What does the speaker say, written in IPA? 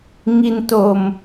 ŋ i˧ n t o˧ m

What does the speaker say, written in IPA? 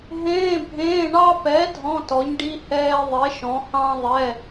ɦ ẽː˧˥˧ bʱ ẽː˧˥˧ ɳ ɑ˥ p ɛ˨˥ dʱ ɔ̃˧˥˧ t ɔ˨˥ ɲ ɖ i˧˥˧ h ɛː˧ ðˤ e˨˥ ʃ ɔ̃˨˥ h ɑ̃˥ ðˤ ɛ˧˥˧

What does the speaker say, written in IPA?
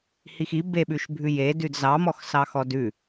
h i x i b e ɓ ʉ ʃ bʱ ʉ j e d ʉ d z ɑ m ɔ x s ɑ x ɔ d ʉ

